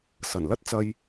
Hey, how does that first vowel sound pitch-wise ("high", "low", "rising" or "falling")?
low